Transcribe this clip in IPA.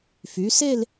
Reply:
fy˩˧se˥˧l

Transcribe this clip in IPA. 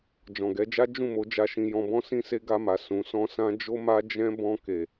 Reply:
d͡ʒɔ̃˨ɡɛ˨˦d͡ʒa˦ d͡ʒũ˦˨mo˨˦ d͡ʒa˧ʃĩ˧jɔ̃˧bɔ̃˦ sĩ˦se˦ ɡa˧ma˨ sũ˨˦sɔ̃˦sã˦ d͡ʒo˦ma˦ d͡ʒɛ̃˦ bɔ̃˧ke˨

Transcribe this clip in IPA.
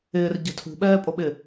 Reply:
ɪːrɟɛ̤ tʰṳɓɛːpʼoɓɪ

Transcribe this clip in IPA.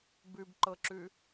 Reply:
bʉbǃɤǁʉ

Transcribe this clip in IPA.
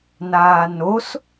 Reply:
naːnos

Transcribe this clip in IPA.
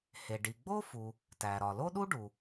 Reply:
he˩ ɖi˩ɡ͡bo˥fu˩ | tæ˩ɾɒ˩ lo˥ɗu˥ ɖu˩

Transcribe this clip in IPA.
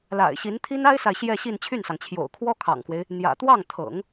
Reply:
la̰˨˩ɪ̯ɕi˧˥nt̪ʰi˥n a˥ɪ̯sa˨ɪ̯ ɕjɛ˥˧ɕi˥˧n t͡ɕʰy˥˩nsɑ˩ŋt͡ɕʰjo̰˨˩ʊ̯ kʰwɔ˥ kʰɑ̰˨˩ŋkwe˦ɪ̯ | n̪jä̰˨˩ t̪wɑ˥˩ŋt̪ʰɤ̰˨˩˦ŋ

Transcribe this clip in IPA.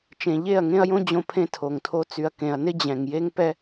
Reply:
t͡ʃẽ˨ʎe˦˨ɐ̯ ŋẽ˦ɐ̯jõ˦ d͡ʑõ˦pʰẽ˦tʰo˨ŋtʰo˦ t͡sy˨ɐ̯kẽ˨ɐ̯ nɪ˦ d͡ʑɛ̃˨ŋ je˦ŋpɛ˦

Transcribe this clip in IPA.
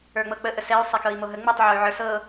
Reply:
ə˞ŋ͡mɤk͡pə ʔəsɛy̯ sˤɛkɤi̯moɦə ŋ͡mitˤ ʕoy̯ʕə˞sɤ

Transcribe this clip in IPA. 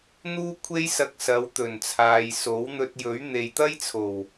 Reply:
n̪uː˥kʷʰe˥j sɐ˧k̚sɐ˨˧w t̪ɵ˨˩nt͡sʰaː˨j so˨˥wn̪ɵ˧t̚jɵ˨˥ɥ n̪e˨jt̪ɐ˥jt͡sʰo˨˩w

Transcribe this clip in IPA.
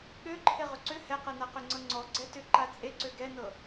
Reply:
ɠøǃʰe ʁʏǀʏ hɛqɤnaqʏ ŋ͡ǀɤŋ͡ǀɔ ɡ͡ǀɛtʏ ǃat͡sʼe ǀøɡɛnɤ

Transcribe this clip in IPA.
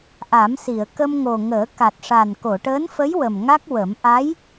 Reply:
ʔa˨˩˦msi˨˩˨ə̯kə˧mŋo˨˩ ŋəː˨˩˦ ka˨˩t̚ʂa˨˩n ko˨˩˨ʈəː˧˥nfə˧˥jwə˨˩m ŋa˦˥k̚wə˨˩˦m ʔa˧˥j

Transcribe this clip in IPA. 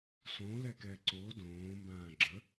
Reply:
sõlɛkɛ ǀo dõːmbãː ɡ͡ǁə

